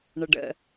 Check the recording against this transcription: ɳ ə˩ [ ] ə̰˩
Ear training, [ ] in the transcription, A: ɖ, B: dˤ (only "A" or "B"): A